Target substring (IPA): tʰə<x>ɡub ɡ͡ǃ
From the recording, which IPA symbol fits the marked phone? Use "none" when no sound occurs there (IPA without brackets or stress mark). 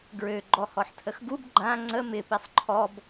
x